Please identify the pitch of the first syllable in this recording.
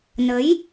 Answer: rising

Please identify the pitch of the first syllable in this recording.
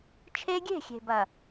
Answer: high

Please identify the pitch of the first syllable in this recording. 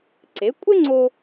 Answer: rising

